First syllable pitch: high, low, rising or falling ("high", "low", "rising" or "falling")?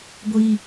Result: high